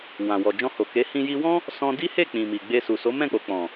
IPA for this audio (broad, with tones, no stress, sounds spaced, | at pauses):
w ã˨ w ɔ˨ d͡ʒ ɔ̃˧ h o˨ k e˨˦ h ĩ˧ j i˧ w ɔ̃˦ | s ɔ̃˧ d i˦ h e˦˨ k͡p ĩ˨ m i˨ ɡ͡b e˧ s u˨ s o˨˦ m ɛ̃˦˨ k͡p o˨ k͡p ɔ̃˨